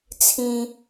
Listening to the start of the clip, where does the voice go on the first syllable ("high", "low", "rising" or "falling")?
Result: low